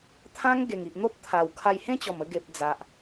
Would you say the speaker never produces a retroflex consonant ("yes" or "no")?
yes